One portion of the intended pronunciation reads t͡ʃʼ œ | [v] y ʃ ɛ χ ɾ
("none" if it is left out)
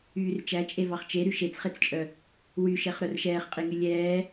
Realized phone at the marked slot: w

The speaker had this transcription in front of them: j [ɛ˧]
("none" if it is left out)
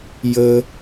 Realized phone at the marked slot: ə˧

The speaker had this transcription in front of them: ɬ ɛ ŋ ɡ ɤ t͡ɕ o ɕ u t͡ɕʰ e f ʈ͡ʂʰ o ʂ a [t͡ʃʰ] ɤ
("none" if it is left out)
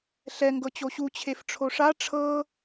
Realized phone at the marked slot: ʈ͡ʂʰ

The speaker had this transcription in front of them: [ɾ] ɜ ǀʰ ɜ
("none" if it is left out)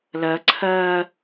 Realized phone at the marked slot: l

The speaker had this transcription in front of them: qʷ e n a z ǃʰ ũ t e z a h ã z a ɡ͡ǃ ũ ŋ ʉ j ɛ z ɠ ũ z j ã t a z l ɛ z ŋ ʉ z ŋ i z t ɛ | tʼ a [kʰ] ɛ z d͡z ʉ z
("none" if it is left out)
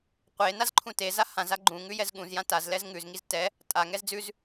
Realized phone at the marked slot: ŋ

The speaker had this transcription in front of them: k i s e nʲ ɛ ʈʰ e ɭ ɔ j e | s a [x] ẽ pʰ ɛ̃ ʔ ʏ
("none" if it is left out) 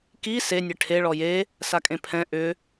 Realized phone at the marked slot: kʼ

